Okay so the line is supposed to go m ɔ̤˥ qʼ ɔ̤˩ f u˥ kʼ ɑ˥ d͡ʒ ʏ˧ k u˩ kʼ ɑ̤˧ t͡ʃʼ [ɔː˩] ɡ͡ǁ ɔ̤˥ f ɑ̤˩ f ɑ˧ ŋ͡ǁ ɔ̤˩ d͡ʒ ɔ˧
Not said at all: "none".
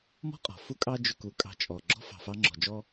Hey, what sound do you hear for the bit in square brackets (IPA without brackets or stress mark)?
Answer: ɔ˩